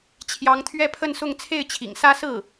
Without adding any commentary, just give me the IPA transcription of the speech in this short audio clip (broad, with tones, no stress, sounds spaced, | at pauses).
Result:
t͡ɕʰ j ɑ˧˥ ŋ t̪ʰ ɥ ɛ˥˧ pʰ ə˥˧ n s ʊ˥˧ ŋ t͡sʰ e˥˩ ɪ̯ t͡ɕʰ ḭ˨˩ ŋ s ä˥ s ɹ̩˥˩